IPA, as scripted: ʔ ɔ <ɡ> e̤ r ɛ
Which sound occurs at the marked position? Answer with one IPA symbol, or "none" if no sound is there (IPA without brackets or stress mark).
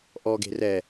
ɡ